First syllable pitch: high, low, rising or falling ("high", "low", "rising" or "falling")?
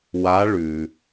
rising